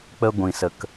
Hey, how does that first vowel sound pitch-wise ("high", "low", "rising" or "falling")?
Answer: high